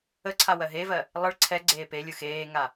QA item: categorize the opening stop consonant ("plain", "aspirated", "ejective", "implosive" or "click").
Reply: click